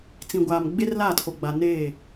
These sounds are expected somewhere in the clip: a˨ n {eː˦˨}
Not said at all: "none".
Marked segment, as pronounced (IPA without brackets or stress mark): eː˦˨